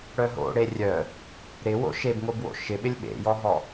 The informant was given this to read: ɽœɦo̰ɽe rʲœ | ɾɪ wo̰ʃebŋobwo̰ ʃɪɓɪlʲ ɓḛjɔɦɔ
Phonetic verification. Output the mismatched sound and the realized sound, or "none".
none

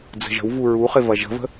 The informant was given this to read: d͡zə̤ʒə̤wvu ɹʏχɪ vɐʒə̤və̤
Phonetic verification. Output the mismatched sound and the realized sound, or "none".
ʏ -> u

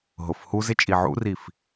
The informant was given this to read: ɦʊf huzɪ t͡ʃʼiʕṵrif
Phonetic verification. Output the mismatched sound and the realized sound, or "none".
none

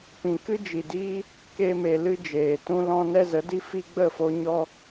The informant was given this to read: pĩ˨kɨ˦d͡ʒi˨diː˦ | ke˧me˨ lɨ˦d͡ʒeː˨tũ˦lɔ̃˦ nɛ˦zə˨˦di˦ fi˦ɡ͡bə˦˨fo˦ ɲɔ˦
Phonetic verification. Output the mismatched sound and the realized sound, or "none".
none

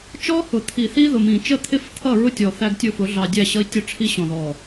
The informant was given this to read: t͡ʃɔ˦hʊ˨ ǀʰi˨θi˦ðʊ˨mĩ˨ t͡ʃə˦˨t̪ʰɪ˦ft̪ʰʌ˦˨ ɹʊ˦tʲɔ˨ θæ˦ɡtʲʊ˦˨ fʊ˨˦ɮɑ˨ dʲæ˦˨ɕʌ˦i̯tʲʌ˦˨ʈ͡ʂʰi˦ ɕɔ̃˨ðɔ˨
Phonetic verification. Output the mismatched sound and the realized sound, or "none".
ǀʰ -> t̪ʰ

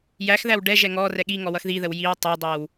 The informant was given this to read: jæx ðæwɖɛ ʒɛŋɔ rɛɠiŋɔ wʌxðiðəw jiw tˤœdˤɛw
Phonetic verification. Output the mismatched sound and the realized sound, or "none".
œ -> æ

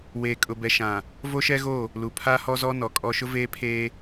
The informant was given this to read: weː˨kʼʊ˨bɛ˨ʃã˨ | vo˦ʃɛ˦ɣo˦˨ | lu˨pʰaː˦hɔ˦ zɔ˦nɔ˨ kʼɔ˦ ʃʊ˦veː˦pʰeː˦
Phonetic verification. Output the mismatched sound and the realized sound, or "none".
none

